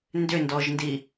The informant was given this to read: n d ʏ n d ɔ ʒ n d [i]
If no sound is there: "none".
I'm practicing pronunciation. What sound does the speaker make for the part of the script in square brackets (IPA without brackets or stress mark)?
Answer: i